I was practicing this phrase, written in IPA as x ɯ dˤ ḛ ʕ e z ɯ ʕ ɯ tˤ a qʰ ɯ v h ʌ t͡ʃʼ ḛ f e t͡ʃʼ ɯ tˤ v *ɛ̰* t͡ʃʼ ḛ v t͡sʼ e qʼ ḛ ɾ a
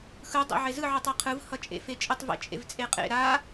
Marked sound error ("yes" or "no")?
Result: yes